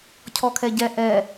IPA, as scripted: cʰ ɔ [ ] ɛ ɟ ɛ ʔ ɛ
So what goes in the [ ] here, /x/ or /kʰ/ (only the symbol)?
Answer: kʰ